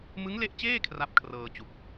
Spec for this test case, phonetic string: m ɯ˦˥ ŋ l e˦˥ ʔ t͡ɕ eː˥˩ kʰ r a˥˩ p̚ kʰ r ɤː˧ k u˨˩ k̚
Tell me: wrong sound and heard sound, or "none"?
k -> t͡ɕ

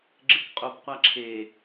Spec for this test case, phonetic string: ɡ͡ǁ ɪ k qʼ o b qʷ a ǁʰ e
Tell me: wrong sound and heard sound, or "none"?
none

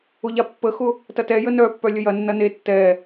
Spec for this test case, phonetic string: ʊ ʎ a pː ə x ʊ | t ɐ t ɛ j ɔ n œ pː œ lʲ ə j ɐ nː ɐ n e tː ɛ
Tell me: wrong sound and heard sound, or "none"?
ɔ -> ə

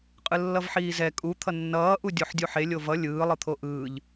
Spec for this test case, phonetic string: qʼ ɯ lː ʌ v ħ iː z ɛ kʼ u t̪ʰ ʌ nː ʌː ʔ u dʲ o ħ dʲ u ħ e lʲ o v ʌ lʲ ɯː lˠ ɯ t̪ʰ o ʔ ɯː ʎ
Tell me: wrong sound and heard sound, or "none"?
none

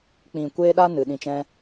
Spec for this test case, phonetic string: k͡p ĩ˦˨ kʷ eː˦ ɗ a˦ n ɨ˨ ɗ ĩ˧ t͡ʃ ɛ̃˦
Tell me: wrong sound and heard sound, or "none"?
none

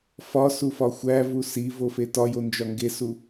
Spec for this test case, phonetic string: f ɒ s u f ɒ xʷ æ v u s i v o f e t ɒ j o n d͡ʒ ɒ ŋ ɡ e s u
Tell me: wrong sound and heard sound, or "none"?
none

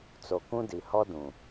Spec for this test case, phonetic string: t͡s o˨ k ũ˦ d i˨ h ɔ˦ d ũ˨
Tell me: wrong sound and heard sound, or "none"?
none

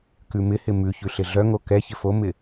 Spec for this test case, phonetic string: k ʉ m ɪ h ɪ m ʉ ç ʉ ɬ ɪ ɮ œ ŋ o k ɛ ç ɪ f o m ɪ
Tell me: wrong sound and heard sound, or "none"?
none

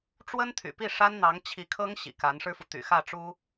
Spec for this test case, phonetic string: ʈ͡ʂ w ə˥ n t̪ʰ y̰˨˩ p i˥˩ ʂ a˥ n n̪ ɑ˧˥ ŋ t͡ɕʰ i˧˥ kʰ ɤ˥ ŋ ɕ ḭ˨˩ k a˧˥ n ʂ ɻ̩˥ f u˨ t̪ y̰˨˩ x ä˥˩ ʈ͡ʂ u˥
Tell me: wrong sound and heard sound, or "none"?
none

